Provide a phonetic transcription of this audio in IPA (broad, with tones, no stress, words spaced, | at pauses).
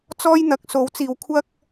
t͡sɔː˥jn̪ɐ˨˥k̚ so˨˥wt͡siː˨wkʷʰɐ˥k̚